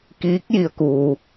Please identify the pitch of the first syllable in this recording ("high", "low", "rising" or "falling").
rising